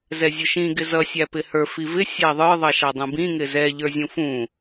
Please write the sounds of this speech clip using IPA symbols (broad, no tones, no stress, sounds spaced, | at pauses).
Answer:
z ɛ zʲ ʊ ʃ ĩ ɡ ɪ z ʌ sʲ æ p ɪ h ə˞ f i v ɪ sʲ æ ðˤ ə˞ ðˤ ʌ ʃ ɑ dˤ ũ b ĩ ŋ ɪ z ɛ ʎ ə˞ zʲ ũ f ũ